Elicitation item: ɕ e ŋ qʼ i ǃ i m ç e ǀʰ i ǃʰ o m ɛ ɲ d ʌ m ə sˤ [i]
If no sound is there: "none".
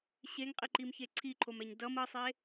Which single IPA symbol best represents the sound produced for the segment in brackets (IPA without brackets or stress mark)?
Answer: e